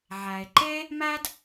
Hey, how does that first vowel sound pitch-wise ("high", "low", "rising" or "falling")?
low